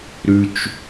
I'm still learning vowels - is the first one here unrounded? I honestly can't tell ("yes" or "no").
no